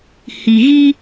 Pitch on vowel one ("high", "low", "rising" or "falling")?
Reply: low